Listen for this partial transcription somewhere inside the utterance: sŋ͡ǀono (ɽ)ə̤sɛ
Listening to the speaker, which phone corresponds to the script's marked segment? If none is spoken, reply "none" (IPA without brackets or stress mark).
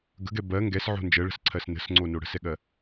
ɽ